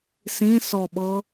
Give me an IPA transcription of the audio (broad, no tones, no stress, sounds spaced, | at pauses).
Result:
s ĩ s ɔ ɓ ɤ